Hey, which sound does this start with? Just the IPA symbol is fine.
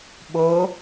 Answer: ɓ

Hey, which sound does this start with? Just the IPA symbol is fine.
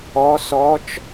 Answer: ɔ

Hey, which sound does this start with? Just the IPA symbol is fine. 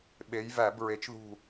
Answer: ɓ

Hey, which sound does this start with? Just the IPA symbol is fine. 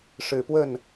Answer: ʂ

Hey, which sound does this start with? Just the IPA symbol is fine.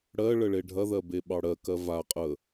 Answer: ɽ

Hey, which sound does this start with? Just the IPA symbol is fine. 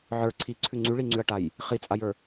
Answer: ʕ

